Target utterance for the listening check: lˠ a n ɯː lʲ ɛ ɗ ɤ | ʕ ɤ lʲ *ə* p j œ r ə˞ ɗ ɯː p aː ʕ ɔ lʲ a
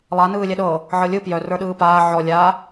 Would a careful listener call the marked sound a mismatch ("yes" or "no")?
yes